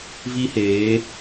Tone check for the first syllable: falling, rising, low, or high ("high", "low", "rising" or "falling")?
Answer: high